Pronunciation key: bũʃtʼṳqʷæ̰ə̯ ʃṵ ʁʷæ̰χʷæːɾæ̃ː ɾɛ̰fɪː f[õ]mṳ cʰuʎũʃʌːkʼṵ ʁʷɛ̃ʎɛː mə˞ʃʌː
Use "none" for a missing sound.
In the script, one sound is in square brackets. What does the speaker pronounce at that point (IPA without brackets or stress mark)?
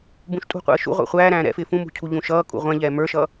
ũ